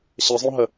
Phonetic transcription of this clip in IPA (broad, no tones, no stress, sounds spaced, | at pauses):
ɕ ə zˤ õ ɦ ə